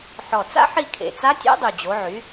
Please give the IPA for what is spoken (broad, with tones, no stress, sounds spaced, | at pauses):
ħ ɔ˨˩ t͡s a̰˥ ħ i˦˨ kʰ ḛ˨˩ t͡s a˧˥ tʲ o̰˧˥ dˤ y˨˩ d͡ʑ o˩˧ ʕ y˩˧